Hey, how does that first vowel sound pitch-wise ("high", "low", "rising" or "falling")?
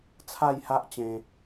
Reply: falling